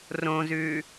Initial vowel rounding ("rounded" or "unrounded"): rounded